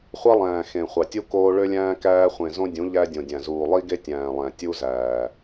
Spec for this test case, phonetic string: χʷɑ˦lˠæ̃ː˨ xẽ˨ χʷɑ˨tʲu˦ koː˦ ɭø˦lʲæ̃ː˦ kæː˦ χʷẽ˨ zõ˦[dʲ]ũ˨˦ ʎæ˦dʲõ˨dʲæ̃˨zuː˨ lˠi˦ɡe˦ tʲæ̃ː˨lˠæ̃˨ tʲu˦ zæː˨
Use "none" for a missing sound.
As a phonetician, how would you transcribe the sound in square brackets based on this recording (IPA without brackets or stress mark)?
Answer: dʲ